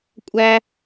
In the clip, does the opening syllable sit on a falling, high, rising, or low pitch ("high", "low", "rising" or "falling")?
high